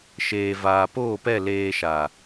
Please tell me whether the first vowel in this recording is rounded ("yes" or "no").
no